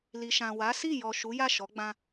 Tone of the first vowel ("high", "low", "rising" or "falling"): low